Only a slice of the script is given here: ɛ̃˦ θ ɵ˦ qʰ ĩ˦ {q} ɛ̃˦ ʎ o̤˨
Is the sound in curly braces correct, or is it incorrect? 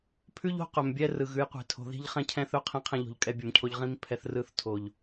incorrect